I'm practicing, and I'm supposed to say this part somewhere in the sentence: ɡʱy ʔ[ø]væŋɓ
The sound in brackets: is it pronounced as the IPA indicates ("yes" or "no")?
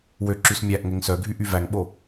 no